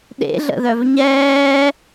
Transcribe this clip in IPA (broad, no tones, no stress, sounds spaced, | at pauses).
ɗ ḛ ɮ ə̰ ð œ v ɲ ɛː